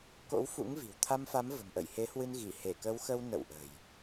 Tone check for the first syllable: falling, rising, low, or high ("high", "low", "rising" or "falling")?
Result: rising